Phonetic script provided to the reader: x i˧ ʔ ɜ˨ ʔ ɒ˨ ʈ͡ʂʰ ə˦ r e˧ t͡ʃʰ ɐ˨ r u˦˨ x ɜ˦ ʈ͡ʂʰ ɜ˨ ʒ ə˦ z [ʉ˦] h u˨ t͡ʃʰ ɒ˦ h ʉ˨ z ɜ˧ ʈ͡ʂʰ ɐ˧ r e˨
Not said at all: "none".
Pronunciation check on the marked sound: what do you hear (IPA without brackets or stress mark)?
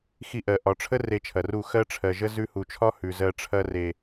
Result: ʉ˧